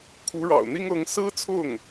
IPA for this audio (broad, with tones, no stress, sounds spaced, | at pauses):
kʰ u˧˥ ɻ ɑ̰˨˩ ʊ̯ n̪ i˥ ŋ ɤ˧˥ ŋ s ɹ̩˥ t͡sʰ ʊ˥˩ ŋ